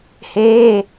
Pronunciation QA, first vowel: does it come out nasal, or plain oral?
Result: oral